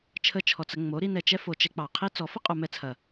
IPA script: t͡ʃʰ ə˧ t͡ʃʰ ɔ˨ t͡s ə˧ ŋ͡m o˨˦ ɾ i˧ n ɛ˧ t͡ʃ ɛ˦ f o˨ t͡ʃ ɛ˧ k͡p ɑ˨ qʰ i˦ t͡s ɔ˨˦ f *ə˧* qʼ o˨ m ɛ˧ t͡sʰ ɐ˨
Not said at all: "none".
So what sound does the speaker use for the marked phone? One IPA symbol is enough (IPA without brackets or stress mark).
ə˦